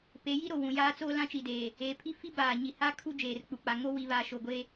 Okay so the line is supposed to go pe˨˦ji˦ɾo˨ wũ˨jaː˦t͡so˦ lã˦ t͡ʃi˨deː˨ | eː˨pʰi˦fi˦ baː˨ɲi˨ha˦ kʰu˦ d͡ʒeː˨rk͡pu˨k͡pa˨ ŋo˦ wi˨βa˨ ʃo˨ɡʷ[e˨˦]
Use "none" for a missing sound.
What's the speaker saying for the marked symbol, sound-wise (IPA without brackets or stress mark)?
e˦